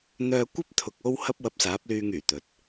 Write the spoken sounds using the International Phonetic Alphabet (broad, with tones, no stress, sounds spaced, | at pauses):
n̪ œː˧ kʷ ɐ˥ p̚ t̪ʰ ʊ˨ k̚ o˥ w h ɐ˥ p̚ w ɐ˧ p̚ s aː˨˥ p̚ l yː˧ ŋ yː˨˩ t̪ ɵ˨ t̚